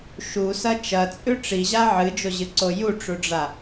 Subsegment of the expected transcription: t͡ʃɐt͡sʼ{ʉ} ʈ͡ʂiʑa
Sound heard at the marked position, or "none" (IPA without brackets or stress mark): ʉ